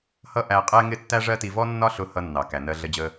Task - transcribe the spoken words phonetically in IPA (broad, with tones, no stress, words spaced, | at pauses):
hʌ˥ʔæ˧qʼɛ˥ŋɪ˥ tːæ˥ʐɜ˥ti˧ vɔ˥nːɒ˥ɬʊ˧ hʌ˧nːɑ˩ kæ˩nɜ˧ɮə˧d͡ʑə˧